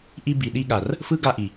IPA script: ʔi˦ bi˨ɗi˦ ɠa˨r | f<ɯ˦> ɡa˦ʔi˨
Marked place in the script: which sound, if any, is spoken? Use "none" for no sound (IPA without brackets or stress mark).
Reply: ɯ˦